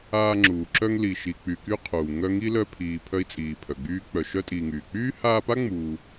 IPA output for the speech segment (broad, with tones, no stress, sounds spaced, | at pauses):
aː˦ ŋ͡ǁ uː˨ ǁ œ˥ ŋ l i˨ ʃ i˨ k͡p y˨ k y˦ qʰ uː˩ ŋ œ˦ ŋ i˥ l œ˦ pʰ iː˨ pʰ œ˦ i̯ t͡sʼ iː˨ pʰ œ˩ ɡ͡b yː˦ k͡p œ˨ ʃ œ˥ tʼ iː˨ ŋ yː˩ k͡p yː˥ h aː˦ p a˥ ŋ͡m uː˨